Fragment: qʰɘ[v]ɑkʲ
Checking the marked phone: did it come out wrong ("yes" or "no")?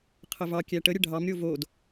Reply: no